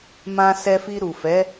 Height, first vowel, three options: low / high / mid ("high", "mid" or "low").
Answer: low